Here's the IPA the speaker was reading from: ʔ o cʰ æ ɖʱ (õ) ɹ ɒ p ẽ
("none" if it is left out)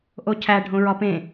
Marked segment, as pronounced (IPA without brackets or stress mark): õ